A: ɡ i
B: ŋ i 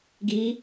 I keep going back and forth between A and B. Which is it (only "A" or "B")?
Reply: A